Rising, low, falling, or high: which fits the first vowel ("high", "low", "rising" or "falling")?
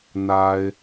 low